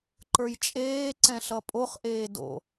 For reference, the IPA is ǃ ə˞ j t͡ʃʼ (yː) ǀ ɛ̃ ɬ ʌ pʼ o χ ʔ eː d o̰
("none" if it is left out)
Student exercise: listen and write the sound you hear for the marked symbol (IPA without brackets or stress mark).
eː